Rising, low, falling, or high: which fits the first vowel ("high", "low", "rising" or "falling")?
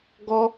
high